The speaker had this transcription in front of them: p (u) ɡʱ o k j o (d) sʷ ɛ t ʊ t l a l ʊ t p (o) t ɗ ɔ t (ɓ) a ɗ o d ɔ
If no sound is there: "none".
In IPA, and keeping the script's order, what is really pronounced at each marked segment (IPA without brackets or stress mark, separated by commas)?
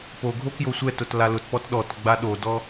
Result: o, none, ɔ, ɡ͡b